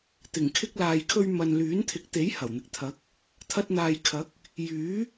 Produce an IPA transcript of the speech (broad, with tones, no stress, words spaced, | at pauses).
t̪ɪ˨˩ŋkʰɪ˧k̚laː˨jkʰɵ˧ɥ mɐ˨n lyː˨˥nt̪ʰɪ˨˥k̚ t̪e˨˥j hɐ˨˩wn̪ɪ˨k̚t̪ʰɐ˨˥k̚ | t̪ʰɐ˧t̚n̪aː˨jkʰɐ˨˥k̚ | jyː˨˥